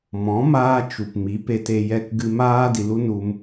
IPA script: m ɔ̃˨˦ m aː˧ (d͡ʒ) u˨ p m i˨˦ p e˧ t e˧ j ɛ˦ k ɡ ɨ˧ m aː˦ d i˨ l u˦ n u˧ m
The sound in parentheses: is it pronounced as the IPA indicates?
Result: no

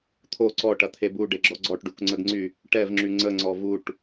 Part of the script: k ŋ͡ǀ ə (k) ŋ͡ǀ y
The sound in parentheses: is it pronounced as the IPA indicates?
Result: no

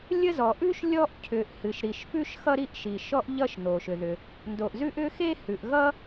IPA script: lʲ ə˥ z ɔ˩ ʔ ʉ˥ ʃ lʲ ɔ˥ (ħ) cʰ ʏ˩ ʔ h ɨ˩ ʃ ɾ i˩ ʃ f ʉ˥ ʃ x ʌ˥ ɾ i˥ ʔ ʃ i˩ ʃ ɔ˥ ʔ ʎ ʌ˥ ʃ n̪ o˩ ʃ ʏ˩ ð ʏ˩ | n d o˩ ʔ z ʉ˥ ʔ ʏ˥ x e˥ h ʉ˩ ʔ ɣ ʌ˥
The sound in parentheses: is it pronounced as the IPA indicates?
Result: no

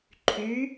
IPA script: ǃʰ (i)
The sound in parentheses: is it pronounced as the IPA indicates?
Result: no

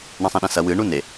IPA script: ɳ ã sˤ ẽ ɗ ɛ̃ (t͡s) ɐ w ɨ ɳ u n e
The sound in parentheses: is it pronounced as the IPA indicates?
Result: no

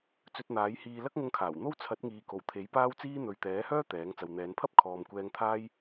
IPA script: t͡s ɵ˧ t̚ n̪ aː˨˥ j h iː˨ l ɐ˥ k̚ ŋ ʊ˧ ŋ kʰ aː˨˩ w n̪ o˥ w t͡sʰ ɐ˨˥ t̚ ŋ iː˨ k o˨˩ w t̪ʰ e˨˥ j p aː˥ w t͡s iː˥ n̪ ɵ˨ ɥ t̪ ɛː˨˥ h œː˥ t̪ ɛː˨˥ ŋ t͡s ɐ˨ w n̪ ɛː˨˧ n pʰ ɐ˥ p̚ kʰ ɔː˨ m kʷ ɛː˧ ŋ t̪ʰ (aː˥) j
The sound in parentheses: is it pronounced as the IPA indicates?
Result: yes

